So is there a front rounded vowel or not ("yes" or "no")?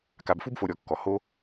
no